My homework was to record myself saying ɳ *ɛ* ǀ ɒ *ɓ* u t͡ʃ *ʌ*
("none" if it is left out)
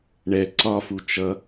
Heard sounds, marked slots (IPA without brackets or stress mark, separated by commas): ɛ, f, ʌ